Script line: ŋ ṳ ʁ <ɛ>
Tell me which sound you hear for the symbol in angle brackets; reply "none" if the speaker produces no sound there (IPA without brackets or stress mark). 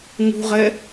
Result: ɛ